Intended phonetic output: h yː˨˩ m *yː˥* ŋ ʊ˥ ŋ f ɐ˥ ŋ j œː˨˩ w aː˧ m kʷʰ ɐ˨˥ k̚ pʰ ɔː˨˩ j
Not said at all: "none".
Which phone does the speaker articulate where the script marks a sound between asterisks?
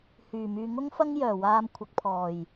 yː˨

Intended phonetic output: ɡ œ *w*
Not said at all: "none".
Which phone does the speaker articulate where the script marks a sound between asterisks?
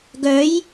j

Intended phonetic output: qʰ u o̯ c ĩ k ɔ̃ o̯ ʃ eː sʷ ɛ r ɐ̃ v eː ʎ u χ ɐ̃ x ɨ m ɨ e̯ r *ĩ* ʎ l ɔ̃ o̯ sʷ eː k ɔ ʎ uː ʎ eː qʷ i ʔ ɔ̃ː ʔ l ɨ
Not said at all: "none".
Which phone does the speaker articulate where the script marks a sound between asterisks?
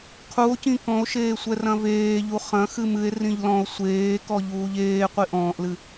ĩ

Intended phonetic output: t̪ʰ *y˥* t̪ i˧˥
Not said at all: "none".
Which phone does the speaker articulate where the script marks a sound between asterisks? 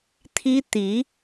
i˥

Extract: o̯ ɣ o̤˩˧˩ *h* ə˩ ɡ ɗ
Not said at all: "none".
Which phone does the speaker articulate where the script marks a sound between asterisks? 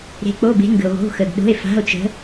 x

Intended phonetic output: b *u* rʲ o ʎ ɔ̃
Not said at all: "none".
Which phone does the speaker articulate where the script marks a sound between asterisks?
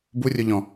u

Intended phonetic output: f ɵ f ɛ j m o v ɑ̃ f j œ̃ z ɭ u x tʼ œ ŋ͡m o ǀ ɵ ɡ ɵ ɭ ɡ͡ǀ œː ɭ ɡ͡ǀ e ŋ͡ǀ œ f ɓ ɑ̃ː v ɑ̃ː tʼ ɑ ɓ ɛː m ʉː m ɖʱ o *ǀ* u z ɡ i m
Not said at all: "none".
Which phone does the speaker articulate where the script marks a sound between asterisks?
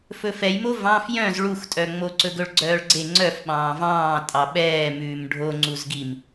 ŋ͡ǀ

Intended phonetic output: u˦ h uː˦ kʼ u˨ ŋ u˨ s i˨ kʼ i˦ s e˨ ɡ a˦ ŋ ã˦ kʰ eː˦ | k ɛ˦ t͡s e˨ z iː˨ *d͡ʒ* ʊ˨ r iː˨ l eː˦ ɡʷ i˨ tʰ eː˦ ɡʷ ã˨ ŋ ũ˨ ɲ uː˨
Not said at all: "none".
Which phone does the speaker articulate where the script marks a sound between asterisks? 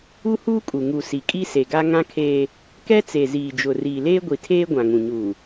d͡ʒ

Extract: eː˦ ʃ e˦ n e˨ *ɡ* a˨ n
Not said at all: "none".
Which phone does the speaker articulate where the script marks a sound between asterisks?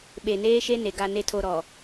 ɡ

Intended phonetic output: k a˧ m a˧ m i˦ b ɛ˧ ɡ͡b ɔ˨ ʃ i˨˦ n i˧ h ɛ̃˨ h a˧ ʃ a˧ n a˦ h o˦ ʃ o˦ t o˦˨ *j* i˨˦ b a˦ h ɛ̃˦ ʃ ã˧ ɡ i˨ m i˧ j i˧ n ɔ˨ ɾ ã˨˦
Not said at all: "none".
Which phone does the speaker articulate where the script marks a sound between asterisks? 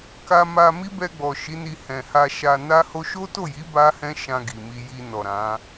j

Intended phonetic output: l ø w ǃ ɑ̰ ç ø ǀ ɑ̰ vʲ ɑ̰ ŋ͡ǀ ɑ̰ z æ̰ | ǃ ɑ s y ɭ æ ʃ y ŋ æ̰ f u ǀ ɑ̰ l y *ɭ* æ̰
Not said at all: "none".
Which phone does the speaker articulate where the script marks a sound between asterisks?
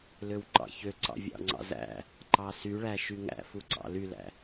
l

